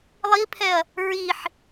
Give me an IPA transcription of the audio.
lˠipʰɛɐ̯ | ɹiħ

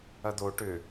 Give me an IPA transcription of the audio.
ɐd̪o ʈʏ

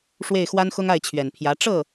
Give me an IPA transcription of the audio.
ʂwe˥˩ɪ̯xwa˥nxʊ˥ŋ a˥˩ɪ̯t͡ɕʰɥɛ˨˩npʰjä˧˥ ʈ͡ʂɤ˥˩

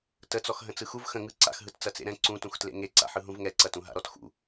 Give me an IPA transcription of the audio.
tət͡sɔx ɦə̃t͡sɯxuv xə̃ ŋɯ ǀa̰xɦɯt t͡sɐt͡sḛɾɛ̃ ǀũtũxtlḛ ŋeǀa̰ħɯ ɦũvŋɛǀɐtũ ɦa̰ɾɔtxṵ

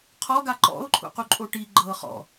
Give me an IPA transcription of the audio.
qʰɔ ɡaǃɔ̰ʊ̯ ǃʰṵquǃʼoʈi ɡ͡ǃɤχɔ̰

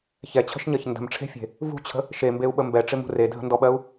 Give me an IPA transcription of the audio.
çɛt͡ɕʰə̤ʃɲɜç ndə̤mʈ͡ʂʰe̤fʲe̤ | vṳt͡ɕʰə̤ | ʃembeu̯ɓə mbɛʈ͡ʂɪmṳ redʱə̤ndɔɓɜu̯

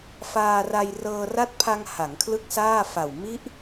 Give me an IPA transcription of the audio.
faː˧ra˧j rɤː˧ra˦˥t̚pʰa˧ŋ ha˩˦ŋkʰlɯ˥˩k̚saː˥˩fa˨˩w mi˦˥ʔ

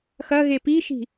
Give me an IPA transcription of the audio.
xɐ ɣepiʃi̤

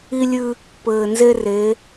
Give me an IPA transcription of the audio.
i˦lʲɨ˦ | pɘː˨nze˦re˨˦

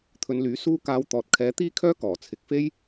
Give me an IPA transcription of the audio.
t̪ʰɵ˨˧nlyː˨˥ suː˧kaː˨˧w t̪ɔː˨t̚kʰɛː˨˧t̪iː˥kʰœː˥ kɔː˨˩t͡sʰɪ˨k̚fe˥j

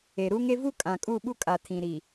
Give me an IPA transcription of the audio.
e˨ɾu˦ŋe˦ vu˦kʼã˨ kʼu˦˨ɓu˦ kʼa˨tʰĩ˨ ɾi˨

